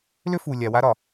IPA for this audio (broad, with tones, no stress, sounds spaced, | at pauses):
l ʏ˦ f u˨ lʲ a˨ w a˦ ɾ ɒ˨